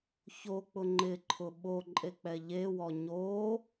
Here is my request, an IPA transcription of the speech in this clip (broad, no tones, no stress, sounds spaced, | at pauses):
ç o k͡p ʊ ŋ͡ǃ ɪ ǃʰ ʊ ɓ o ǃʼ e k͡p ɛ ʎ e w ɔ ɲ o